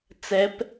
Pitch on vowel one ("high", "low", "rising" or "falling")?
rising